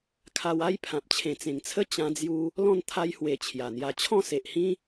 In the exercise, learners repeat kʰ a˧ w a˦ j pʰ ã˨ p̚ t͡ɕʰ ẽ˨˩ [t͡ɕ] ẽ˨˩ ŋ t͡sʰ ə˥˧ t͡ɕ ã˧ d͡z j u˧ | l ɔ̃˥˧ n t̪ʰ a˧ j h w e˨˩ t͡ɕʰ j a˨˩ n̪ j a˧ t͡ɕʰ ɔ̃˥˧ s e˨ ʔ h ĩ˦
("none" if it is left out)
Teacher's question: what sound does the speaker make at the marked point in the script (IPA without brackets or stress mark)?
t͡s